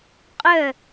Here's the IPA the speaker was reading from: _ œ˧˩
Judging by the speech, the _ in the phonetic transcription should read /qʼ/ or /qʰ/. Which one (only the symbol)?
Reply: qʼ